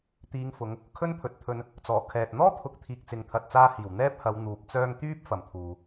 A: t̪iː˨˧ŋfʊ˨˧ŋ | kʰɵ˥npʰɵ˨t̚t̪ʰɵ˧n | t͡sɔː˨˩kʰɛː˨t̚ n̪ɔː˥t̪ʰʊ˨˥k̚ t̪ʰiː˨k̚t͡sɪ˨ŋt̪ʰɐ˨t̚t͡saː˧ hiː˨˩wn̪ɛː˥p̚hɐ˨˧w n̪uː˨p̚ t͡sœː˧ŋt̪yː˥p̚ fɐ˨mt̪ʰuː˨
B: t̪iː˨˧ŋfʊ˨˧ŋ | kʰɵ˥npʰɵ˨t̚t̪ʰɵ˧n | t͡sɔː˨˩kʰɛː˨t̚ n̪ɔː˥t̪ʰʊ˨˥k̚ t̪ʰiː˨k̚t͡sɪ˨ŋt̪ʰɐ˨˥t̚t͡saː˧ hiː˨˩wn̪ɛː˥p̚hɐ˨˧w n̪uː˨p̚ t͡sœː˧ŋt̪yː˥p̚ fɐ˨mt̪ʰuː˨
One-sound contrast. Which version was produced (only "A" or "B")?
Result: A